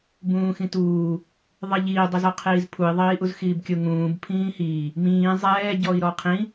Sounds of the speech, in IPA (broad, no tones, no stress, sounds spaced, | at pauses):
b ũː x ĩ t uː | ðˤ i ʎ iː dˤ i z ɔ qʰ iː z pʰ u i̯ ðˤ iː ʔ u z x iː b kʲ ʊ ŋ ũː b pʰ ĩː h iː | m ĩː zˤ ɛː ɟ ɔ i̯ ɾ ɔ qʰ ĩ